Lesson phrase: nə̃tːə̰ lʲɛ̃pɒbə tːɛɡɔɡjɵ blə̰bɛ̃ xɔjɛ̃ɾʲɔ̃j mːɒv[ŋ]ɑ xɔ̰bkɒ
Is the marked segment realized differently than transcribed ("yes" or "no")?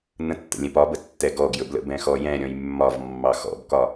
yes